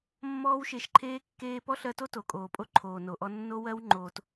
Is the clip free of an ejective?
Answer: no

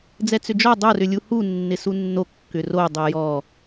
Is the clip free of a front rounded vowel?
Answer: no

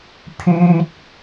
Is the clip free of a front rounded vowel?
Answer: no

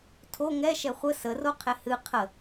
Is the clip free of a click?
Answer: yes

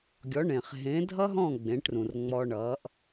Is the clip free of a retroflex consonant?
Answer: no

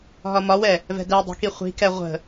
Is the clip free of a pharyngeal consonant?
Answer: yes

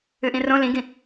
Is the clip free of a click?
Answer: yes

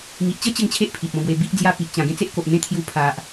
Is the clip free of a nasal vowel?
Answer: no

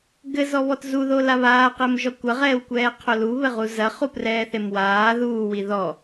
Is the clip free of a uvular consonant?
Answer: no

